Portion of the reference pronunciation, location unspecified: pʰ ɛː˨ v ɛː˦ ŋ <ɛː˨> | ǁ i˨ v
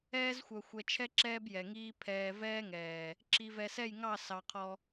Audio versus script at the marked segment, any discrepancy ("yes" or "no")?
no